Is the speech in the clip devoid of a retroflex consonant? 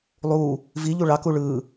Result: no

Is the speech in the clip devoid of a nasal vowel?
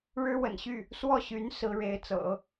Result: yes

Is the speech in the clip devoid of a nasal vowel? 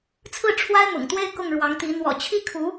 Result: yes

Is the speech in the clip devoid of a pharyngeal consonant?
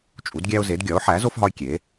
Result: no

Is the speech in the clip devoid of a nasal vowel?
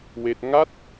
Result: yes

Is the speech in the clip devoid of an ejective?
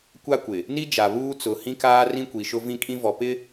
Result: no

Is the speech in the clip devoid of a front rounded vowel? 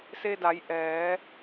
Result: yes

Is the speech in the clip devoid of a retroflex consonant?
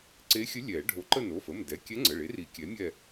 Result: no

